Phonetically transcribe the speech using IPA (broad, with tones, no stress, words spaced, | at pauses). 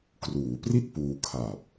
kruː˩˦pri˥˩t̚ puː˧kʰa˨˩p̚